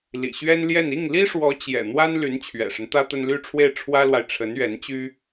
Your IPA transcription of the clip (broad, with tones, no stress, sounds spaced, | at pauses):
l ḭ˨˩ ɕ ɥ ɛ˥ n l j ɛ˥˧ n i˥˩ ŋ l i˥ ʂ w ɔ˧˥ t͡ɕ j ɛ̰˨˩ n̪ w a˥ n l y˧˥ n t͡ɕʰ ɥ ɛ̰˨˩ ʂ ə˦ n t̪ ä˥ t̪ ə˥ n l y˥˧ ʈ͡ʂʰ w e˥˩ ɪ̯ ʈ͡ʂʰ w ä˥ l w a˨ ɪ̯ ʈ͡ʂʰ ə˧˥ n ɥ ɛ˧˥ n t͡ɕ y˥